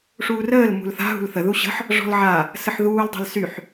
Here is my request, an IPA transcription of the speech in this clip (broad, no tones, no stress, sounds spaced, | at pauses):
ʂ uː r əː l m ṳ l θ a̤ ɦ ṳ l θ ə ð u ɕ ə̤ ħ | ʐ ɔ̤ l ʕ a | s ə ħ ð uː l dˤ a̤ l s y ħ